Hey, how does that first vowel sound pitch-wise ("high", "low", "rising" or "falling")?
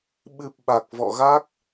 low